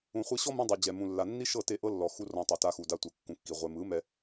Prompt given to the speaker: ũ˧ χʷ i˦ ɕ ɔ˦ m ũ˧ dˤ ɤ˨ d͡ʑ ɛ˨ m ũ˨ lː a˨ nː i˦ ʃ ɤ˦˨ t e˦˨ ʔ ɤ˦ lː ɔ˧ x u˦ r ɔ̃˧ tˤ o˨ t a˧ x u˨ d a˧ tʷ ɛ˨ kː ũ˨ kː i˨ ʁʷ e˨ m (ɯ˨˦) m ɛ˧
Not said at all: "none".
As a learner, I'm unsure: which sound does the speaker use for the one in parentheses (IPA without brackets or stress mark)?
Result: ɯ˨˦